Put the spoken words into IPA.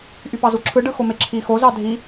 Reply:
ʔ y p ɑ z u ǁʰ ɯ ɖ ɯ x o m e ǁʰ i x o z ɑ dʱ i

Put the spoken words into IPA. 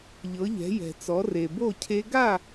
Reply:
ʎ ɤ˩˧ ʎ ɛ̤˩˧ j ɛ̤˩ t͡s ɔ˩˧ r e˩ b o˥˨ cʰ e˦˥ ɡ a˥˨

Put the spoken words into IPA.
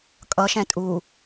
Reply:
kʼ ʌ ʃ ɛ̃ tʼ u

